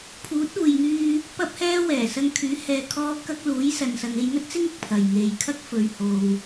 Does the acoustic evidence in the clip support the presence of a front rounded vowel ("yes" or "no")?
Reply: yes